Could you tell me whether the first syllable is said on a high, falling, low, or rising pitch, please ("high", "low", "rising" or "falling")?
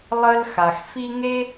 high